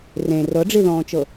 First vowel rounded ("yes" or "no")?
no